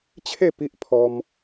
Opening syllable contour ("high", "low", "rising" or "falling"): falling